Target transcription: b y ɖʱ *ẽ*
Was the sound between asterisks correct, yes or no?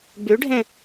yes